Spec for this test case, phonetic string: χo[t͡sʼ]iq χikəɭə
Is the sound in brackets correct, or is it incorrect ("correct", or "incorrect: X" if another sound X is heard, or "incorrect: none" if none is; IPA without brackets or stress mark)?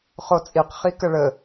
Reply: correct